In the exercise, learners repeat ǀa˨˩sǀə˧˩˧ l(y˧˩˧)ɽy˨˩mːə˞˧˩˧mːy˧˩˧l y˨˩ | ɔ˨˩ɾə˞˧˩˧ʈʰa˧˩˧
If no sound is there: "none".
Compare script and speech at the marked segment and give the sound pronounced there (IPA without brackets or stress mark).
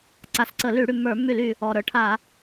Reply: y˧˩˧